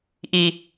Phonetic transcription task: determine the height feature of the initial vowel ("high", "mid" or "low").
high